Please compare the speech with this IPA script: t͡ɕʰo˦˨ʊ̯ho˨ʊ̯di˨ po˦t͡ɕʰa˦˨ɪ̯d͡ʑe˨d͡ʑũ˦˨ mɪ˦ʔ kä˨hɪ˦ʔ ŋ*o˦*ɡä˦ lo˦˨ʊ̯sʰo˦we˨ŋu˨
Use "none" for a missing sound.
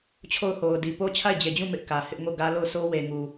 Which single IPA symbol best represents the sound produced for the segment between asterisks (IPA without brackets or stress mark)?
o˦˨